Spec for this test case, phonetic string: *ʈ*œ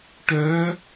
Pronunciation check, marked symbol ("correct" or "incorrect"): correct